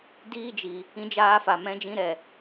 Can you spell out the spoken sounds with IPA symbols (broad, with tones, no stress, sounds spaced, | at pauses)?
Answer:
d iː˦ d͡ʒ i˧ | ĩ˦ d͡ʒ aː˦ f a˧ m ɛ̃˦ d͡ʒ ĩ˦ ɾ ɛ˧